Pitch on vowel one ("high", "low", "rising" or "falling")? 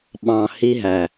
low